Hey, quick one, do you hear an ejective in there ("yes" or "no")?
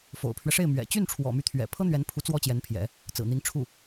no